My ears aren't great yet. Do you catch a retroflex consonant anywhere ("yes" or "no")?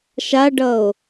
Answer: yes